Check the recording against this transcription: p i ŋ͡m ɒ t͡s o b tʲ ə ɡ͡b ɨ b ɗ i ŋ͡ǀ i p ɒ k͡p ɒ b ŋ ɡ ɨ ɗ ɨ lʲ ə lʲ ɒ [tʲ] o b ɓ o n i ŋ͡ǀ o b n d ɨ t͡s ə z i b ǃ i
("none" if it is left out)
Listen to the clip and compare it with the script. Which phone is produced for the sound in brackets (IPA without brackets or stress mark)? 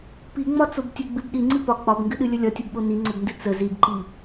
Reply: tʲ